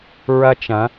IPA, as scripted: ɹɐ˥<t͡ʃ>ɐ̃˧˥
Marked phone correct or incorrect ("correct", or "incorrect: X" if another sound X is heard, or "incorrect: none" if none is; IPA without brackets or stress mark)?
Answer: correct